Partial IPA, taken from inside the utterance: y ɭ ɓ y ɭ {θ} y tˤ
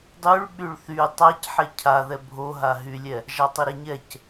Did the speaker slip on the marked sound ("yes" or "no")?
no